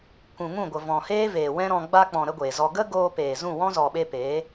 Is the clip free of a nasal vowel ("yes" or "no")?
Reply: no